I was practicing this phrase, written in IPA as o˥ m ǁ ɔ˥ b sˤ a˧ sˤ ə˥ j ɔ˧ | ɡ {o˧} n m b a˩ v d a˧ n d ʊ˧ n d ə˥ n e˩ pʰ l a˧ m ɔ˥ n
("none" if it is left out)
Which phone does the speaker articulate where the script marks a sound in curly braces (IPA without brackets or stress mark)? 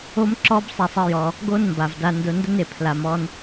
o˥